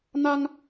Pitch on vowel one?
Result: high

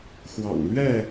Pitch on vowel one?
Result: low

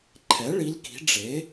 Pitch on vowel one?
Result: rising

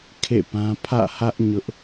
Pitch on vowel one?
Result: falling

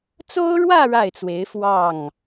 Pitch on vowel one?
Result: high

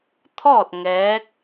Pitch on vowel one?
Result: falling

